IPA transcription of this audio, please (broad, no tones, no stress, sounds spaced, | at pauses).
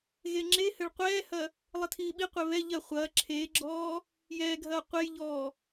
ɣ e ŋ͡ǁ e h ɘ ɭ qʷ ɛː h ɐ | lˠ ɘ tʰ iː ɓ i qʷ e β ɛ ʎ ɐ χʷ ɐː ǁʰ eː ɡ͡ǁ ɔː | j ɛː ɡʱ ɐː qʷ e j ʎ ɔː